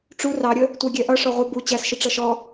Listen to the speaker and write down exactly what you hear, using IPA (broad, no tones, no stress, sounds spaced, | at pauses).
ʈ͡ʂ u r ɑ ɾʲ ə | tʷ æ ɡʲ ɛ ʔ ʌ ʂ ɔ ʁʷ ə b u t͡ɕ æ s ʃ ɪ ʈ͡ʂ ʌ ʃ ɔ